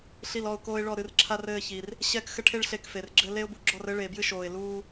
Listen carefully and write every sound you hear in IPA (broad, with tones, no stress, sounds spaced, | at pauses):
ɬ i˦˨ l ɔ˦˨ ʊ̯ k oː˦ ɪ̯ ɭ ɔ˦˨ ɾ ɨ˦˨ r ǁʰ a˦ r ɘː˦˨ ç i˨ r | ɕ ɛ˦˨ k x ɘ˦ ʈʰ e˦ ɭ ɬ e˦˨ k f e˨ r ɡ͡ǁ ɘ˦ l e˦ ʊ̯ b u˨ ɡ͡ǁ ɔ˦˨ r ɘ˦ ɭ eː˨ b j ɨ˦ ʃ oː˨ ɪ̯ l uː˦